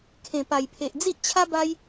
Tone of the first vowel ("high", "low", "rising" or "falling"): low